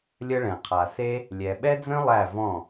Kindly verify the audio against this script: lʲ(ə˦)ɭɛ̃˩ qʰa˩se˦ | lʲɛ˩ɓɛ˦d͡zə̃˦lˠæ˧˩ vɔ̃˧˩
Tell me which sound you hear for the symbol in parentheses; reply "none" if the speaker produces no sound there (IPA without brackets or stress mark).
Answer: ə˦